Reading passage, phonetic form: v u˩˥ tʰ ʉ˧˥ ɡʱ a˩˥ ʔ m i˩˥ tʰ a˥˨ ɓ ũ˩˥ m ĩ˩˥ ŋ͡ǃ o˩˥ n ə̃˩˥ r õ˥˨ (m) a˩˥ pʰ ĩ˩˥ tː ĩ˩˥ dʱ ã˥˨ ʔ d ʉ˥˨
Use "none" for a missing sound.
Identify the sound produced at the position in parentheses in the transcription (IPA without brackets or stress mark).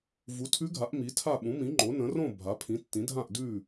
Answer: bʱ